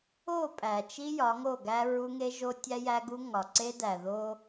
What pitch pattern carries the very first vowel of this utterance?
falling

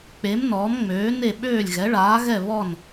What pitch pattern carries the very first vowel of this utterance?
rising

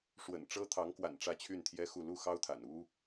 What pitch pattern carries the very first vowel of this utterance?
low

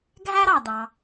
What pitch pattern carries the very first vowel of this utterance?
high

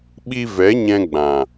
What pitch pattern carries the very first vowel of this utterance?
high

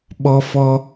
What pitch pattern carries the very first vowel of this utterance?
high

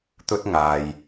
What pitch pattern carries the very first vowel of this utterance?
high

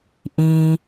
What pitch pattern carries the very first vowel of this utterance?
low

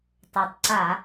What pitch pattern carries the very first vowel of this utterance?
low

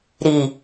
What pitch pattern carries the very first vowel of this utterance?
low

